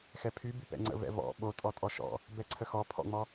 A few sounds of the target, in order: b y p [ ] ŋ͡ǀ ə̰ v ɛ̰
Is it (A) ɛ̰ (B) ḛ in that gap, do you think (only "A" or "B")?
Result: A